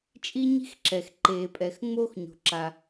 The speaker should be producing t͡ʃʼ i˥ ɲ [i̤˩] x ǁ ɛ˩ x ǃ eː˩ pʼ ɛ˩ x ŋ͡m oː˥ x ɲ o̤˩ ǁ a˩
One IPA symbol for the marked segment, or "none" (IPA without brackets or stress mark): i̤˥